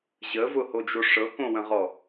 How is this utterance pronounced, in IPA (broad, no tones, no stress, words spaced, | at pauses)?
ʑəvʊhod͡ʒo ʂɤkõwə̃ʁɔ